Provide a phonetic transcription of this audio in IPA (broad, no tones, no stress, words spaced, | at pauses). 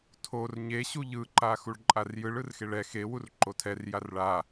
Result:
tʰor ɲeɕu ʎɯǃa xuɭǃʼarjɯɭ ɯrxeɭɛ xewur ǃotʰɛr jarɭa